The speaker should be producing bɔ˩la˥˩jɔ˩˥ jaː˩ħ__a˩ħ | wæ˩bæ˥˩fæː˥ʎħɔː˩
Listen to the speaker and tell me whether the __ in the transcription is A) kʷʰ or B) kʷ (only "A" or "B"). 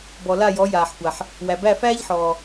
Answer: B